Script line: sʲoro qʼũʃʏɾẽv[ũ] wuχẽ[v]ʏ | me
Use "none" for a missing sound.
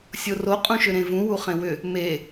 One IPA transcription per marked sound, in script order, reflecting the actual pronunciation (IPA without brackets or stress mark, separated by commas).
ũ, w